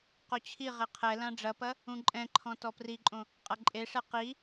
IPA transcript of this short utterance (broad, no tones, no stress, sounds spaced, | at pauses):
q o t͡ɕʰ i ʁ e qʰ ɛ l ã ɖ͡ʐ ɐ p ɐ | ũ ǃʼ ɛ̃ ǃʰ ɔ̃ t ɔ p r i ǃʼ õ | qʼ ɐ ǃʼ e ʂ ɛ q i